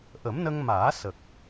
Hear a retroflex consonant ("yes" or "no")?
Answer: no